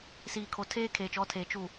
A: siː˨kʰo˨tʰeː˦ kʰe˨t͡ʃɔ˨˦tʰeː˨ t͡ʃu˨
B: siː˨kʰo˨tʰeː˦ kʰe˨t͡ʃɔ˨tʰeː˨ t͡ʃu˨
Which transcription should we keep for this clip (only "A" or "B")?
A